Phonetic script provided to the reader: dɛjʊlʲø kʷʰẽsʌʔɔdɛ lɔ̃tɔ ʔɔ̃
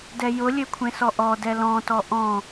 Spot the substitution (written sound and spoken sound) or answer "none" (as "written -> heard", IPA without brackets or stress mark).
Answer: ʌ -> ɔ